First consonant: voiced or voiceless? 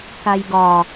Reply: voiceless